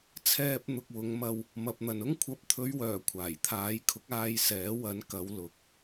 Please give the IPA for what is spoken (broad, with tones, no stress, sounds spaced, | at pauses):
t͡sʰ ɛː˧ p̚ n̪ ʊ˨ k̚ w ʊ˨˧ ŋ m ɐ˧ w | m ɐ˨ p̚ n̪ ɐ˨ n ʊ˥ ŋ kʷʰ ɐ˨˥ p̚ t̪ʰ ɵ˨˧ ɥ w œː˨˩ kʷʰ aː˨˩ j t̪ʰ aː˨˥ j kʰ ʊ˨˥ k̚ aː˧ j s ɛː˨˥ w ɐ˨˥ n k ɐ˨˧ w l ʊ˨˥ k̚